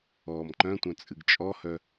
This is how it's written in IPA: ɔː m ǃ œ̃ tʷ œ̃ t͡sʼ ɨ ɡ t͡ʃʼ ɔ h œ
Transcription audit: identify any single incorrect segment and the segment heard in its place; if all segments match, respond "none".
none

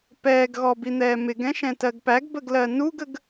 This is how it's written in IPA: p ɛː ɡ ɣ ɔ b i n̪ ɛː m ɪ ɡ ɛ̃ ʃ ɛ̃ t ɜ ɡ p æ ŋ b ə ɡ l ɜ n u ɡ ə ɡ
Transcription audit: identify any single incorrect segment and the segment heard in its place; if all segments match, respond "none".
ŋ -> ɡ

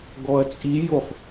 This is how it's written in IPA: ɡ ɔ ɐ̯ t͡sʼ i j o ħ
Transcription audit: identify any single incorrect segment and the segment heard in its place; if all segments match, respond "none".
ħ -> χ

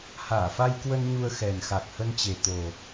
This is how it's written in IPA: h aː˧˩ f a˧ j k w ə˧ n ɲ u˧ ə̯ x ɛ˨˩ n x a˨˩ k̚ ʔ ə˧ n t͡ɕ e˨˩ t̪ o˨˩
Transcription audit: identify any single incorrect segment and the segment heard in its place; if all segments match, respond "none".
ʔ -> h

